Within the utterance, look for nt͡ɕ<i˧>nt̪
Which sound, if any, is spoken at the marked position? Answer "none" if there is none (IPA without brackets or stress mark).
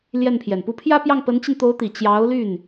i˧